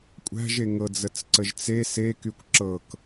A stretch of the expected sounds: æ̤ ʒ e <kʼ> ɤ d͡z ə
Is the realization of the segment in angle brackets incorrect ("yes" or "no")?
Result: yes